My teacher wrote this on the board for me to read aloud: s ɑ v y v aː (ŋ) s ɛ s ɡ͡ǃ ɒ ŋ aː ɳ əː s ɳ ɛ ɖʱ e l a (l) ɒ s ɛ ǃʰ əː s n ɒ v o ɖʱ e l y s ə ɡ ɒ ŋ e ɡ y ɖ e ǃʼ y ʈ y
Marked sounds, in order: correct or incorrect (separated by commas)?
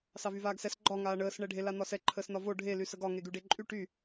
incorrect, incorrect